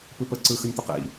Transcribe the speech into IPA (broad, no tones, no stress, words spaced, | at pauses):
pɯpə ǀɯxənʲt̪ə qḭ